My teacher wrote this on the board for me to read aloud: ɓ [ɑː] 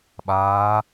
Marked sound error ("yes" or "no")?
yes